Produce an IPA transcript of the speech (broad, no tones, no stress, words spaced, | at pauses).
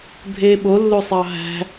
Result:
bʱeːɓo lːosˤɑɦæ̤